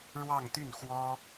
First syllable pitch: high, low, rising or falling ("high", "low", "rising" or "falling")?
falling